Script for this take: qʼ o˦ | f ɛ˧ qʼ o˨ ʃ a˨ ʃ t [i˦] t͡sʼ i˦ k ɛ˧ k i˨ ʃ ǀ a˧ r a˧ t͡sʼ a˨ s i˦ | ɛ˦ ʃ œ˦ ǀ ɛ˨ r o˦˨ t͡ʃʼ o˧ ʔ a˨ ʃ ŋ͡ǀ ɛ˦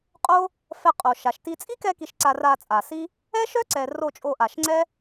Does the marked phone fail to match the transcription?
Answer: yes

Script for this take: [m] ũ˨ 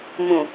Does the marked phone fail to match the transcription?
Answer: no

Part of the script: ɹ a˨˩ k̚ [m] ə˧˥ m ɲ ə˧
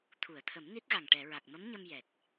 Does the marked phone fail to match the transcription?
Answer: no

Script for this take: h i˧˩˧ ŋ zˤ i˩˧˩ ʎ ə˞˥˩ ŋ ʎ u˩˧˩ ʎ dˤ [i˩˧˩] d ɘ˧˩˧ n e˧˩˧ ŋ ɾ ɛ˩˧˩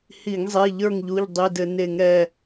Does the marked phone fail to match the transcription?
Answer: no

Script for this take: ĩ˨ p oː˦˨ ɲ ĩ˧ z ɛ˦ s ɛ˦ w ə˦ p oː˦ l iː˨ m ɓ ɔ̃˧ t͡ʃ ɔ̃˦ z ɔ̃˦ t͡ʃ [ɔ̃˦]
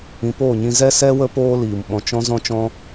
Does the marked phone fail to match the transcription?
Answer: no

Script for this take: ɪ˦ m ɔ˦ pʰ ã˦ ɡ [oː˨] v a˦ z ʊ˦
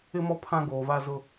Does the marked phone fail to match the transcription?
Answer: no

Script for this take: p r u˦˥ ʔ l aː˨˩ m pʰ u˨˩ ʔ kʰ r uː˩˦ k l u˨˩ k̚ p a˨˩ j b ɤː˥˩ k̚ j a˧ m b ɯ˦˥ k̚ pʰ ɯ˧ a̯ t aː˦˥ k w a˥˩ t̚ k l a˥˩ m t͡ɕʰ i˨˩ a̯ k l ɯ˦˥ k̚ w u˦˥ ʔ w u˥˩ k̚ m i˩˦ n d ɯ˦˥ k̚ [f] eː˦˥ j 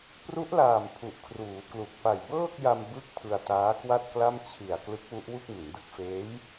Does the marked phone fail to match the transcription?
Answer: no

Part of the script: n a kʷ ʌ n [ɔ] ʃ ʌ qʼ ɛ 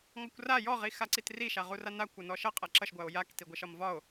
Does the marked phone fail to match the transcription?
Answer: no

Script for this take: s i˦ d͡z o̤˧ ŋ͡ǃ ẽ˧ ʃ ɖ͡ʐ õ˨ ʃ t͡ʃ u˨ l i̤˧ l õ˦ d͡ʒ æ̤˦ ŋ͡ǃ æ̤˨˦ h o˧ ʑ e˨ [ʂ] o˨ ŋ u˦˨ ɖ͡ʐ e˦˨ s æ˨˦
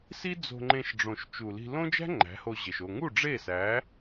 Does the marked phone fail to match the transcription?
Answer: yes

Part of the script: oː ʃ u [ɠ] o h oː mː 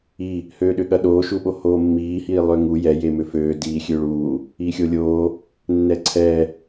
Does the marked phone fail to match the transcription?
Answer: yes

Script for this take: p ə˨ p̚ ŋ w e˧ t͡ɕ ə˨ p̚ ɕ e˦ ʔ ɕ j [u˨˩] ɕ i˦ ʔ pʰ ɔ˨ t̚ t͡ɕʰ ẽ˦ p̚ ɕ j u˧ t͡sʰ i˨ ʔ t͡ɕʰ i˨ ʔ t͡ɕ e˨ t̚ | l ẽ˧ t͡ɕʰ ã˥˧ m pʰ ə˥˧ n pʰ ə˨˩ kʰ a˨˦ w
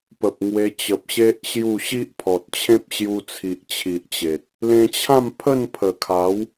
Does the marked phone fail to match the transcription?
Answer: yes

